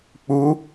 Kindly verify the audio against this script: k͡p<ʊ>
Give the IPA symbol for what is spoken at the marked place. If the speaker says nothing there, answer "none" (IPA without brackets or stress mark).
u